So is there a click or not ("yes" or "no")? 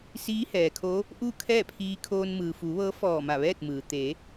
no